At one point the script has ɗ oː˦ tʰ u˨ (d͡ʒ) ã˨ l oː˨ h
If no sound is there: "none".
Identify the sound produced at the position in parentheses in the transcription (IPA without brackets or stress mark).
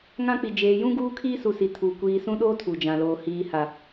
d͡ʒ